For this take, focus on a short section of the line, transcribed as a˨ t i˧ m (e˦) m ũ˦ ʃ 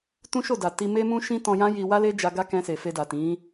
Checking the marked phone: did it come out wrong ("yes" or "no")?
no